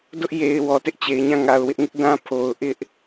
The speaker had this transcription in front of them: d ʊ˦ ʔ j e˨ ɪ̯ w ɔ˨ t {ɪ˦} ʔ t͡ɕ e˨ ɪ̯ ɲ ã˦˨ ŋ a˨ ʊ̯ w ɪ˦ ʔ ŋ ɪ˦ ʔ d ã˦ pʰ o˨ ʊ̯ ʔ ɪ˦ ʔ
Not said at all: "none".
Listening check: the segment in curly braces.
ɪ˦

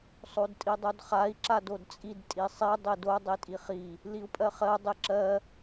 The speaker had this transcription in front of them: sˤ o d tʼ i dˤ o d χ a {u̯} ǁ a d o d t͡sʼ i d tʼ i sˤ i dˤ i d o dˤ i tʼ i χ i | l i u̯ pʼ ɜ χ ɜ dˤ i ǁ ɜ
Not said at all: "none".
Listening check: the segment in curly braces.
i̯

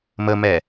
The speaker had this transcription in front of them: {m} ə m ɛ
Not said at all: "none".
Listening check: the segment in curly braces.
m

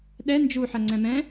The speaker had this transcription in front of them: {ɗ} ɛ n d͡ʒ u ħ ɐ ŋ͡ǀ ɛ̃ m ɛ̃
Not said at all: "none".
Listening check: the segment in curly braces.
ɗ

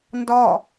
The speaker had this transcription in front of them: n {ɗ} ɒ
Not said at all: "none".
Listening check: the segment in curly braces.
d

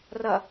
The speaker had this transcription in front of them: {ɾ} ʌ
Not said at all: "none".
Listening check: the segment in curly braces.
r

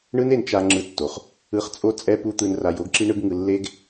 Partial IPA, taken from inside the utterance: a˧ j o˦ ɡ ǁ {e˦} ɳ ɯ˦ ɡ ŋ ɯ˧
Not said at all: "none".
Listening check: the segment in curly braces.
i˦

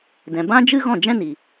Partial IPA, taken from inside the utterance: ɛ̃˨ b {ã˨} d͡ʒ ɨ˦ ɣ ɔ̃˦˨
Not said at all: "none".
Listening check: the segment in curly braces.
ã˦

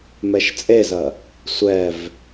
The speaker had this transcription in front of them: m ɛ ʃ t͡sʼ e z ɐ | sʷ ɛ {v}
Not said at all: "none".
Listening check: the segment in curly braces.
v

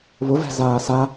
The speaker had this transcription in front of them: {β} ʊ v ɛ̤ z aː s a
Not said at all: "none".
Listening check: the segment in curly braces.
β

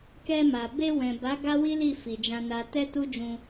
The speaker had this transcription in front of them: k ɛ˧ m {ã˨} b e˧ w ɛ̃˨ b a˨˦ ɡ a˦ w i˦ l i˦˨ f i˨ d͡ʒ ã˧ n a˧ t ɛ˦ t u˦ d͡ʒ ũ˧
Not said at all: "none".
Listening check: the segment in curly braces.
a˨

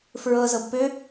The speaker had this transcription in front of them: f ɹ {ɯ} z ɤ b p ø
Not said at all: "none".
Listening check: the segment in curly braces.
ɤ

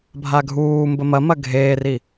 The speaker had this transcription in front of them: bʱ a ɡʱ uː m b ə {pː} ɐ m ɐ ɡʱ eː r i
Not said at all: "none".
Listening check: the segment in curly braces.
m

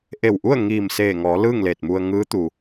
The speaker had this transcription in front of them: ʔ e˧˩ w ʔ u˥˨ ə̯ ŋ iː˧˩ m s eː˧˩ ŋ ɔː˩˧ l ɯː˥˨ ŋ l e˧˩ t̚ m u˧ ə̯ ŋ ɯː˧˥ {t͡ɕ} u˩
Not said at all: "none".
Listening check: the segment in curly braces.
t̪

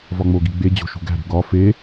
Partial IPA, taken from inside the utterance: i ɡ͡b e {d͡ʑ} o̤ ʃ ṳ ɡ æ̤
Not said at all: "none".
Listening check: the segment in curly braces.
d͡ʑ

